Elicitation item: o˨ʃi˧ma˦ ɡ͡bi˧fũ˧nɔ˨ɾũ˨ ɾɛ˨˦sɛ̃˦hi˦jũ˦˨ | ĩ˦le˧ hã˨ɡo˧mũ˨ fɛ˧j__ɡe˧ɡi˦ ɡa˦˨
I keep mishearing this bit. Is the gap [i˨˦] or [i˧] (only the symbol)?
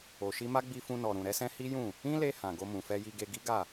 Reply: i˧